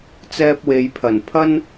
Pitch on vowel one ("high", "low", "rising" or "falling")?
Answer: high